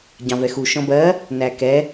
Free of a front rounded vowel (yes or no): yes